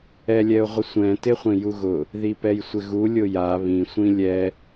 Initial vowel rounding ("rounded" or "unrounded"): unrounded